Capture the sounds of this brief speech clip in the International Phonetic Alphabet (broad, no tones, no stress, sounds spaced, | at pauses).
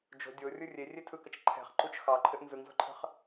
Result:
d͡ʒ o̤ dʲ o rʲ ɯ rʲ e rʲ e tʰ ɯ k ə t͡ʃ ǃʰ ɛ̤ χ ǃ u t͡ʃ x ɑ ǃʰ ɘ ʔ n z ɯ ŋ z o̤ ǃʰ ə̤ χ